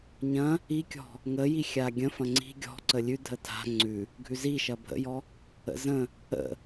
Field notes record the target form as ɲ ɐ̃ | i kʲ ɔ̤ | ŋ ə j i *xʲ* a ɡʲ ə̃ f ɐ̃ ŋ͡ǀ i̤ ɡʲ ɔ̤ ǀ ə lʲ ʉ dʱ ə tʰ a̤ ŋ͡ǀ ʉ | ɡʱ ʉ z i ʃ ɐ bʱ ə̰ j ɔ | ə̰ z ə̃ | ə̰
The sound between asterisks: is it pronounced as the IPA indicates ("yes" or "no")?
yes